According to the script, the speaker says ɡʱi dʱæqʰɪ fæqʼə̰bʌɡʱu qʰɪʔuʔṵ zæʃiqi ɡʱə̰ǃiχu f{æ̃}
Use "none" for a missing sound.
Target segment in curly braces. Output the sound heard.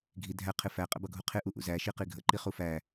æ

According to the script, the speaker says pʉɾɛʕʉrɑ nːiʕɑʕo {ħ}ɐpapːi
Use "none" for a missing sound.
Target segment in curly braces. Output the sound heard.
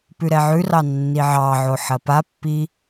ħ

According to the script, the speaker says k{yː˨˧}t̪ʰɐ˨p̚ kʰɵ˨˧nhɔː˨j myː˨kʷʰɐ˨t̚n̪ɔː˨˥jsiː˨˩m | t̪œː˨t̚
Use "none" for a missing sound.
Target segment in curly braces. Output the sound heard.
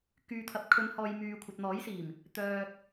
yː˨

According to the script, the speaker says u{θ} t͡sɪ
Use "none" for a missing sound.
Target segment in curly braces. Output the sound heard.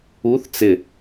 θ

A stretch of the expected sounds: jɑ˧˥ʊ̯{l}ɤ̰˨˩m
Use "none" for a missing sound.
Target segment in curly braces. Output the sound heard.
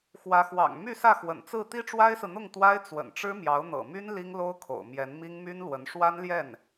n̪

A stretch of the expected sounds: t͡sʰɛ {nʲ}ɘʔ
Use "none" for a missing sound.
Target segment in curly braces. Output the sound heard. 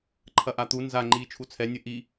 nʲ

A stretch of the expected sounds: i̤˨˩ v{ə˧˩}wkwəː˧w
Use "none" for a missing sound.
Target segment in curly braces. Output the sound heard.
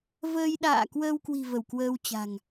ə˧˩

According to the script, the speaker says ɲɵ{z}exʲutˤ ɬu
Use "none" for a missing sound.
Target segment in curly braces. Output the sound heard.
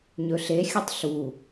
ɬ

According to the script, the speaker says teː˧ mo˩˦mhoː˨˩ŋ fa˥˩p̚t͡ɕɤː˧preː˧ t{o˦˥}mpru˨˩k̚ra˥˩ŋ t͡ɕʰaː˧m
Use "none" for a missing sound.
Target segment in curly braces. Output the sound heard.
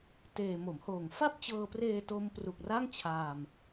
o˦˥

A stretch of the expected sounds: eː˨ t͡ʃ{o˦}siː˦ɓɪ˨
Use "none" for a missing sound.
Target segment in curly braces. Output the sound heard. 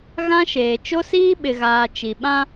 o˦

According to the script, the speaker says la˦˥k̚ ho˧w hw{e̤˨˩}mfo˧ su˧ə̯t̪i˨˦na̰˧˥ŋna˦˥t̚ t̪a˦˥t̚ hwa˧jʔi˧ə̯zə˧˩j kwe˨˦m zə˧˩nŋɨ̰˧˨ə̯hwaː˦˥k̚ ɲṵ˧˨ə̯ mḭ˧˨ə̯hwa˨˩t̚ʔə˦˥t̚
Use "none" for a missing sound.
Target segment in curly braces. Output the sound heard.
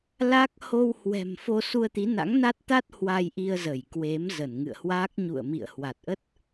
ɛ̤˨˩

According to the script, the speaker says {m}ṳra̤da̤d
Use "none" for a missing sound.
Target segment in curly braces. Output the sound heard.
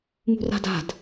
m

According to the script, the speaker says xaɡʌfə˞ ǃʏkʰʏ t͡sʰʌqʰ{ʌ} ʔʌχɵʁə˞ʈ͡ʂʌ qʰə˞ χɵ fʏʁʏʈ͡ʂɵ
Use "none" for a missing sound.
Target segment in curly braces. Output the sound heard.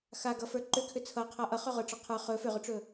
a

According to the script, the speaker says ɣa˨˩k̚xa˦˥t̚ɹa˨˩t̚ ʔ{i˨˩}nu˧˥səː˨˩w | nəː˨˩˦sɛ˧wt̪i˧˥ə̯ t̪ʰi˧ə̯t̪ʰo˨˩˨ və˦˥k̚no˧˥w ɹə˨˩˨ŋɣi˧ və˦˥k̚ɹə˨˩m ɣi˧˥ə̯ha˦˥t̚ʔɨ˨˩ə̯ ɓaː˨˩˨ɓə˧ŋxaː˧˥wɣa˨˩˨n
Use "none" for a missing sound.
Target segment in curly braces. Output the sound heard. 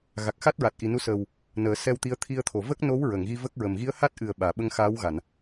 i˨˩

